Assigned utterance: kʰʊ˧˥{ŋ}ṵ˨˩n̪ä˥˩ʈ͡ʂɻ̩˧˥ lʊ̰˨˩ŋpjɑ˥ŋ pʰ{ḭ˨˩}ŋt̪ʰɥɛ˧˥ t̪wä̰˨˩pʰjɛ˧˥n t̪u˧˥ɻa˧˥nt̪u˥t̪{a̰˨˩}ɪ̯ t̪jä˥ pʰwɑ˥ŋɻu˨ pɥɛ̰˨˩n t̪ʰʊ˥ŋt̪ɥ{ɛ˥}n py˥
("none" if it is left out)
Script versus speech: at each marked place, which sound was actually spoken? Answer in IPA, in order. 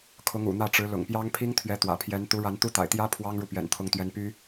ŋ, i˥, a̰˨˩, ɛ˥

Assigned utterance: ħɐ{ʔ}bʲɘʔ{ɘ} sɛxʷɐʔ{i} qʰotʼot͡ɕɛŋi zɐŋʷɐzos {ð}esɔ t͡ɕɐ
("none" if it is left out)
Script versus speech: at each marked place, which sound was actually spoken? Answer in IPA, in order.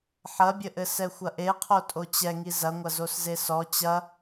none, ɘ, e, z

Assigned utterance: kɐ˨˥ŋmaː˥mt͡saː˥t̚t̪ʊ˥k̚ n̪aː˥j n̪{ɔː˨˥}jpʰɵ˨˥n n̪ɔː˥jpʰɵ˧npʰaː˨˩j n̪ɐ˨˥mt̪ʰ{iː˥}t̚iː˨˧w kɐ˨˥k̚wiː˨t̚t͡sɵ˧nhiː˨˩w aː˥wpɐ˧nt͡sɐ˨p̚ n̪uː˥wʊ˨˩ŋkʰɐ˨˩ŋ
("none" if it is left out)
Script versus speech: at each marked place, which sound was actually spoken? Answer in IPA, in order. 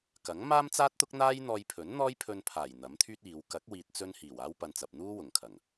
ɔː˧, yː˥

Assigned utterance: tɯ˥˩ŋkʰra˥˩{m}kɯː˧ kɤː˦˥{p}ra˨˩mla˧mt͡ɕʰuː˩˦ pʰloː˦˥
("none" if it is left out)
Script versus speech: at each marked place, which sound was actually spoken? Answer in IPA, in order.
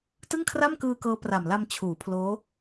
m, p

